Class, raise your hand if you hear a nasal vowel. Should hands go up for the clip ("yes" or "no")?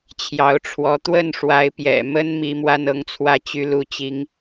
no